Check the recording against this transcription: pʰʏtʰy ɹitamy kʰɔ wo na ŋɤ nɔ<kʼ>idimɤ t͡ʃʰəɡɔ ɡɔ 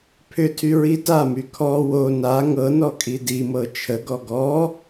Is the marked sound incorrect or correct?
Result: correct